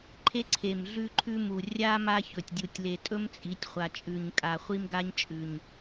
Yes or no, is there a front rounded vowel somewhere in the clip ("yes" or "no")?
no